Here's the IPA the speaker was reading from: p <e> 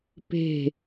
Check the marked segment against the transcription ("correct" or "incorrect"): incorrect